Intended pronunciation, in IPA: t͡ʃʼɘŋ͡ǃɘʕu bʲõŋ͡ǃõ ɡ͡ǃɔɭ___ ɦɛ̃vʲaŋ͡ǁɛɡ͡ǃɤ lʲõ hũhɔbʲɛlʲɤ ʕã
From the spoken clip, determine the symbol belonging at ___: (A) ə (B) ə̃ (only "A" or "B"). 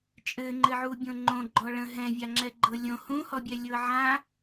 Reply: B